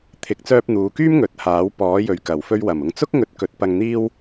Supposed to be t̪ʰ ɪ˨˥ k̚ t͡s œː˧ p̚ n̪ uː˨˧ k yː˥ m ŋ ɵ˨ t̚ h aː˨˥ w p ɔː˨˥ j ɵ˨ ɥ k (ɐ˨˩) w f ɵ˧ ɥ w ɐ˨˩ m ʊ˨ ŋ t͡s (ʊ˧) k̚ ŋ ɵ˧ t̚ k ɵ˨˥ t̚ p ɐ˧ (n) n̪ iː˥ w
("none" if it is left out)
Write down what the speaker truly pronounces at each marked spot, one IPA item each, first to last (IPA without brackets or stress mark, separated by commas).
ɐ˨˩, ʊ˥, ŋ